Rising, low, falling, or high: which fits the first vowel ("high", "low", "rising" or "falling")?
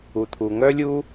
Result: low